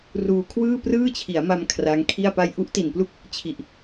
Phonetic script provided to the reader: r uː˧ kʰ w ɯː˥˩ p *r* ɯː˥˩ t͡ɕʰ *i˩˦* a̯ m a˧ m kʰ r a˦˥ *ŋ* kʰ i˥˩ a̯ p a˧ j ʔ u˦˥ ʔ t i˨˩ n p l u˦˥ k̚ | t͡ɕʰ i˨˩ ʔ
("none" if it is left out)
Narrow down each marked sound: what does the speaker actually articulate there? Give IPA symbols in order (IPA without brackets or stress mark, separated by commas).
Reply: r, i˩˦, ŋ